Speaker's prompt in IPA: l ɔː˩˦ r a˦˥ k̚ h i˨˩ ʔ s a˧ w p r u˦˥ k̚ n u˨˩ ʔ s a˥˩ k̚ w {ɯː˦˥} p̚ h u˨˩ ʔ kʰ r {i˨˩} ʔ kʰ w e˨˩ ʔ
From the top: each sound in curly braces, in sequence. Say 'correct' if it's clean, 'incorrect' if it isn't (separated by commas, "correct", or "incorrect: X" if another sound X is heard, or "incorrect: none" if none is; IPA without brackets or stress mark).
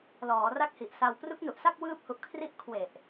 correct, incorrect: i˦˥